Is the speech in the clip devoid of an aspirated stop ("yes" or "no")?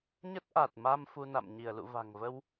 yes